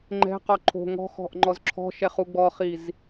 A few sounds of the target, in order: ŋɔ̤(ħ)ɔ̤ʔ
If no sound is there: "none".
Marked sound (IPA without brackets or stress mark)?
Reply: x